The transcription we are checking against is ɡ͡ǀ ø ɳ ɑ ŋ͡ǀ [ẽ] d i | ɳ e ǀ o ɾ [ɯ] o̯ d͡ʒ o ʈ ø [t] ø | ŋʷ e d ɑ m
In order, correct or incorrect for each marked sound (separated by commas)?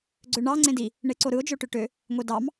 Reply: correct, correct, incorrect